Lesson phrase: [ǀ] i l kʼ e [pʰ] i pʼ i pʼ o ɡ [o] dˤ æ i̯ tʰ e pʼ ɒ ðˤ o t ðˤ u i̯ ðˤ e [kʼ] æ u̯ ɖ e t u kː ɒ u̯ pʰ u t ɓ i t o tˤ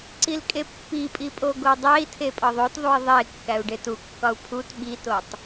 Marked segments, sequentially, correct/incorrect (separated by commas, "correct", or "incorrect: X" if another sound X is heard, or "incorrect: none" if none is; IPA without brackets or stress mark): correct, incorrect: pː, correct, incorrect: kː